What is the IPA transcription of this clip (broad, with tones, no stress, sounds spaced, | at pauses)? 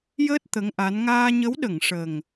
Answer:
j əː˦˥ t̚ t̪ ə˧˥ ŋ ʔ a˧˥ n ŋ aː˧ ɲ ə˧˥ w ɗ ə˨˩˨ ŋ ʂ ə˨˩ ŋ